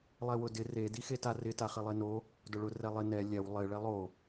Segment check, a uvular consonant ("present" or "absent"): present